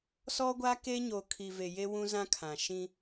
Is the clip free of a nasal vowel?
no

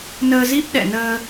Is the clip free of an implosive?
no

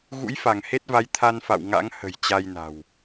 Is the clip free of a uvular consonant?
yes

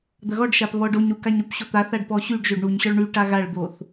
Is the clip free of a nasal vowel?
yes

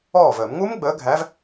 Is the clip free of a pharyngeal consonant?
yes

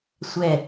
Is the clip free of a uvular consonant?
yes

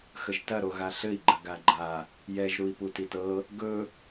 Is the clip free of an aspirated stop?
yes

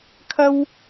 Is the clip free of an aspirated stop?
no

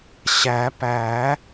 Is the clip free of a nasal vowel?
yes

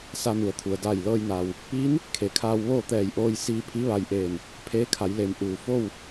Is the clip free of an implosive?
yes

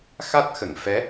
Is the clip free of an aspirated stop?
yes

